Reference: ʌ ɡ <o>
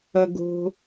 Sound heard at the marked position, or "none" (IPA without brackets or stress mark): o̤